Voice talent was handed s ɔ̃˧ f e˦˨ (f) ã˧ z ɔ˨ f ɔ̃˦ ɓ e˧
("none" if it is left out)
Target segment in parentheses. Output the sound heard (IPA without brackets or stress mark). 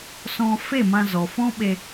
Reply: m